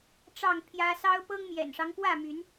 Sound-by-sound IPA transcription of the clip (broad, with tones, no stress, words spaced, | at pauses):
ʈ͡ʂɑ˥˨ŋpʰjä˦ sɑ˦ʊ̯pɤ˦ŋmjɛ̰˨˩nʂɑ˦ŋ kwä˥˨my˨˦n